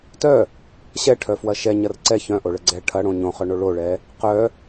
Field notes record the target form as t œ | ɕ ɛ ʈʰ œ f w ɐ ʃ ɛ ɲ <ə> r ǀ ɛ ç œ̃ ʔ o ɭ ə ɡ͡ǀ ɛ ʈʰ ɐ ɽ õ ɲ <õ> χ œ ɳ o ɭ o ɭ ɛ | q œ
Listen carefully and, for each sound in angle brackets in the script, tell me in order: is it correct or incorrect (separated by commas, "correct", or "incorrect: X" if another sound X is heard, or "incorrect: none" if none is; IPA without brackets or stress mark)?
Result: incorrect: ɐ, correct